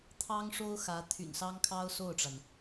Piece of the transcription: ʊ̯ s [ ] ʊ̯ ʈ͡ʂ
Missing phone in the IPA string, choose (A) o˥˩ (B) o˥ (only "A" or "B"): A